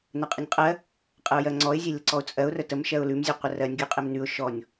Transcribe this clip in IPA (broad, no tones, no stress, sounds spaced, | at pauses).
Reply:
n ə qʼ ə nʲ qʼ ɜ | qʼ ə ʊ̯ j ɜ ŋ͡ǀ ɔ ɪ̯ zʲ e lʲ ə ǀ ɔ ʊ̯ t͡sʼ ɜ ʊ̯ r ə t ə m ʃ ɜ ʊ̯ l ʉ m zʲ ʉ qʷ ə r ɜ nʲ ɡʲ ʉ qʼ e m n ʉ ʊ̯ ʃ ɔ nʲ